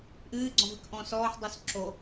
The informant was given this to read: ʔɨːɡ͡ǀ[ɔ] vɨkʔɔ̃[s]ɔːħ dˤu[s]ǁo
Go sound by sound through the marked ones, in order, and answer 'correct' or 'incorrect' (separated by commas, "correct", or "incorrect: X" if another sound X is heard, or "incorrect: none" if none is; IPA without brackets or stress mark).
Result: incorrect: ɔ̃, correct, correct